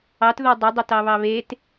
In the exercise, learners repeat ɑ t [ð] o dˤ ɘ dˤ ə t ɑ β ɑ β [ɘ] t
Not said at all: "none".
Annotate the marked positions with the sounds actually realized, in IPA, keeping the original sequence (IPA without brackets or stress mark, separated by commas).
ð, e